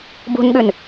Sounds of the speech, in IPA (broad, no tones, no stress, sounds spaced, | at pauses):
b ṳ n ɠ ʉ n